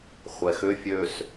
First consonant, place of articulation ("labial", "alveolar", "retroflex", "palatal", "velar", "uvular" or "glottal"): uvular